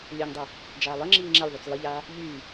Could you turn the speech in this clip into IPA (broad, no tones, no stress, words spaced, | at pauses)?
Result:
lʲœŋdˤɛ | d͡ʒaːlˠəŋ͡ǁiː ŋ͡ǁɛlʲðˤyt͡s lˠəʎaː | ʎyː